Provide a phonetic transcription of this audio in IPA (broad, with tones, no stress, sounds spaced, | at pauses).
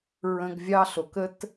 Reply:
ɹ ə̃˧ ɡ vʲ ɑ˦ ɬ o˨ k ə˦ t